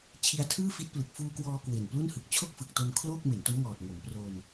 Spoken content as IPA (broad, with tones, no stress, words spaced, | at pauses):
t͡ɕʰi˧a̯tʰɯː˥˩fi˦˥t̚plɯ˨˩k̚ fuː˧kwɔː˧ kwe˨˩nplu˥˩nhɯ˨˩k̚ t͡ɕʰo˥˩k̚fɯ˨˩k̚to˧n kʰlo˥˩k̚ me˩˦nto˦˥mŋɔː˨˩t̚ ŋo˩˦mpro˧n